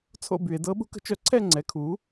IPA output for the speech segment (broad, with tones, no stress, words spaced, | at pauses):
t͡sʰo̰˥˨by˧˩˧e̯dɤ˧˥ ɓṳ˧˥kə̤˩˥t͡ʃœ˩˥ ǀʰɛ˥˨ŋ͡ǀɛ˩˥kʰu˩˥